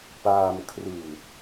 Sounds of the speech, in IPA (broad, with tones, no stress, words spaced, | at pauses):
paː˧mkʰrɯː˨˩t̚